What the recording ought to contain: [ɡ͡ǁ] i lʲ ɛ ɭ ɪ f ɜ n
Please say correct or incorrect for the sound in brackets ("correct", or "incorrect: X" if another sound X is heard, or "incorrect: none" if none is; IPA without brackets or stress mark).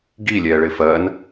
incorrect: ɡ